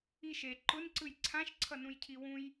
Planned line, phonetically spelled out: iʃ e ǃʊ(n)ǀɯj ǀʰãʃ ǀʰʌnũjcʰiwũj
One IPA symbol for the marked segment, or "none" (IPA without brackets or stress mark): n